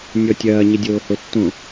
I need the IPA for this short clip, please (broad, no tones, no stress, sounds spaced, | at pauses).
nʲ ɔ tʲ ɐː ɲ ɪ dʲ oː h o tː õ